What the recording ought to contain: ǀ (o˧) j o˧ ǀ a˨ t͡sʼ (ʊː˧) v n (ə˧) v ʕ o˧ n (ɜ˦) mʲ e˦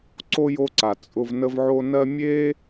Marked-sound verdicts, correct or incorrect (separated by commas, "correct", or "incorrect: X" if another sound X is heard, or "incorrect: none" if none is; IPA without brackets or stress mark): correct, incorrect: ʊ˧, correct, correct